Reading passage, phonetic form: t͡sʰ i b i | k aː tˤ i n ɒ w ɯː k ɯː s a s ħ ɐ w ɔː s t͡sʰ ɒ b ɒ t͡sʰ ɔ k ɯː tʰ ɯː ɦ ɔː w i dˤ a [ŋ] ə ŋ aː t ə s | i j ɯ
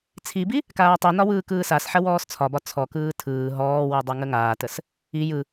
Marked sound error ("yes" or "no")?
no